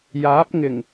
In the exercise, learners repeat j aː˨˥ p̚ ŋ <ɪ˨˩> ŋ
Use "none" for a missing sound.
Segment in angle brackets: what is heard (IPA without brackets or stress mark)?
ɪ˨˩